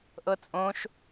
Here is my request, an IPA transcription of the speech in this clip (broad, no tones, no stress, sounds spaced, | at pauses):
ʔ ɤ t͡sʼ õ ʃ